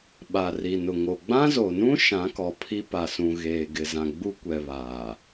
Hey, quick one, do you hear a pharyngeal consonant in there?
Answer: no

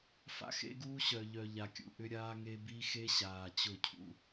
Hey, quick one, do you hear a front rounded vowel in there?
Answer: yes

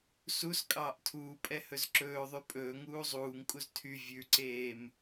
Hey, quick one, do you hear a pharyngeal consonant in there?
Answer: no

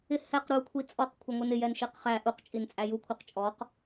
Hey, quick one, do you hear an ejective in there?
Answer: yes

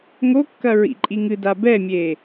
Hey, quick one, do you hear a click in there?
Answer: yes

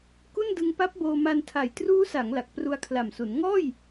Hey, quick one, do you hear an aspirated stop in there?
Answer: yes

